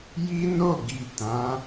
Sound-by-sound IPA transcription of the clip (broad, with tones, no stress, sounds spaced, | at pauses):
j i˦ n o˦˨ ɡ i˨ t ã˨˦